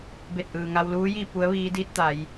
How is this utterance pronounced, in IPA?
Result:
be˧˩t̚ʔɯː˩ ŋa˧wluː˧˥ji˥˨ pu˧˥ə̯ʋiː˧˥diː˧˥t̚t̪a˩˧j

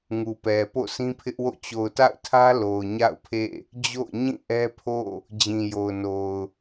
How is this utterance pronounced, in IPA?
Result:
ŋu˨pɛ˨ po̰˦˨sʰĩ˦pʰɪ˦ʔwo̰˦˨ t͡ɕo˨ʊ̯ta̰˦˨ʊ̯tʰä˦ lo˨ʊ̯ɲa̰˦˨ʊ̯pʰḛ˦˨ | d͡ʑo̰˦˨ʊ̯ɲĩ˦˨ ʔɛ˦pʰo̰˦˨ | d͡ʑĩ˨jo˨ʊ̯ no˨ʊ̯

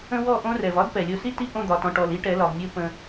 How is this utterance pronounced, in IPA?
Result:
ə̃˦wɔ˦˨ʔõ˦rɛ˨v ɒ˦dpɛ˨ lʲo˨si˦˨ti˦˨ ʔõ˦˨d̪ɒ˨tɔ̃˨ʈɔ˨l i˦ʈɛ˨˦lɒ˨vmʲo˦ pə̃˦

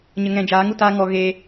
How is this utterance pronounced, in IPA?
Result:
ɲə˨ŋɛ̃˨d͡ʒaː˨˦ŋu˨ taː˦ŋɔ˧ ɣe˧

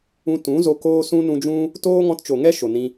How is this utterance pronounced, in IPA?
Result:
ũ˧ tũ˨˦ zo˧koː˦ sũ˦nũ˧d͡ʒũ˦ | toː˦ŋɔ̃˧tt͡ʃo˨ŋɛ˦ ʃo˨nĩ˧

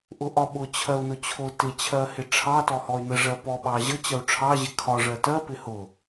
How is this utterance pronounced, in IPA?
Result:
ʔʊʔɒɓʊ t͡ɕʰɜu̯nʊt͡ɕʰʊ tɪ t͡ɕʰɜhɪʈ͡ʂʰɑ tɔhɔy̯nə ʐɜpɔ ɓɑʑə t͡ɕɜu̯ʈ͡ʂʰɑ ʑɪkʰɒ ʐɜtɜ pɪhʊ

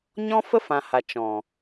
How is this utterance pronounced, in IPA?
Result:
ɲɔ̃˦ fə˦fã˨ha˨ t͡ʃɔ̃˨

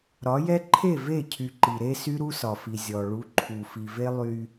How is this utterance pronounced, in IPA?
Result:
ɾɒ˨˦jɛ˦ ǃʰe˦˨ve˦˨ cʰy˨ǃi˨ɾe˦ sy˦ɾu˦sɒ˨fi˨ zʲɔ˨ ɭu˨˦ǃʰu˨fi˨ve˦ lˠy˦

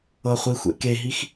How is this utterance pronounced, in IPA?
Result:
ɤ χʷixʷḛ keɦix

